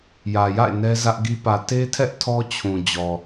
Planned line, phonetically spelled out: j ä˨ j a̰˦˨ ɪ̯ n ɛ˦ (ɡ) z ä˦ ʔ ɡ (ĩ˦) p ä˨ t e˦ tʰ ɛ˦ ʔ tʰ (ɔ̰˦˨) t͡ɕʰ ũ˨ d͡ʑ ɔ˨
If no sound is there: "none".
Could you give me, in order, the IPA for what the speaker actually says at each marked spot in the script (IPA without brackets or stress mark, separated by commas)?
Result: none, i˦, ɔ˦